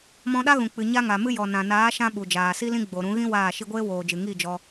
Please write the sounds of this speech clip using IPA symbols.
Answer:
mɔ̃˧ɗa˦ɣũ˨ k͡pɨ˨ɲa˧ ŋa˨mɨ˦jɔ˨ nã˨naː˨˦ʃã˧ ɓu˨d͡ʒaː˨si˦lĩ˦ ɡ͡bo˨ɾũ˨˦ɣĩ˦ waː˦˨ʃi˦ ɡʷeː˦woː˨d͡ʒɨ˨ ŋi˦˨d͡ʒɔ˧

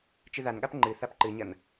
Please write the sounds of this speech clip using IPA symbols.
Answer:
t͡ʃɨðanɠap ŋ͡ǃɨ θapǃɨɲɐn

